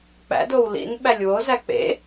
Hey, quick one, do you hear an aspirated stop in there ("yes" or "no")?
no